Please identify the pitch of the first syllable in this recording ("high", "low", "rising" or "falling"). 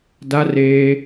high